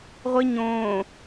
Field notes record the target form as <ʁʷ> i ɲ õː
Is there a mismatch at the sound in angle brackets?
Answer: no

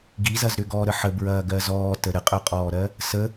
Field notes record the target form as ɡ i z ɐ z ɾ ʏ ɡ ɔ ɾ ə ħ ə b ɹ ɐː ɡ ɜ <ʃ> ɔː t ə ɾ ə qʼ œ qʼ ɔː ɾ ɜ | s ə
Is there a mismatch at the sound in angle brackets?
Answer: yes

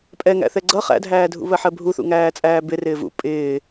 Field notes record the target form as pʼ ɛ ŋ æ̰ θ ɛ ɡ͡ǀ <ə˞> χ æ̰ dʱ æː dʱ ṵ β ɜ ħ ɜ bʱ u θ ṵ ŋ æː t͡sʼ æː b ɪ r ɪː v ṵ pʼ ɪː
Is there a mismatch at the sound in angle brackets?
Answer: yes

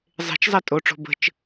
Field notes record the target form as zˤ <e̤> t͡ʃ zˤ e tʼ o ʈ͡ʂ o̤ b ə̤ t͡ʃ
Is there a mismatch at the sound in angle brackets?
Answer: no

